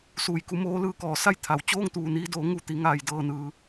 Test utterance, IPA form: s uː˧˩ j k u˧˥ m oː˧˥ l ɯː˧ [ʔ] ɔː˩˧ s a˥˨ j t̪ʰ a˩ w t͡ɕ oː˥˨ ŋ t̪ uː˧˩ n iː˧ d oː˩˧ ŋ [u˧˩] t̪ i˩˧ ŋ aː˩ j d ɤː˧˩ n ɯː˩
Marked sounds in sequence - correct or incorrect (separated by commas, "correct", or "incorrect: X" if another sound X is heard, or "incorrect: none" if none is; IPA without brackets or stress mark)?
incorrect: k, correct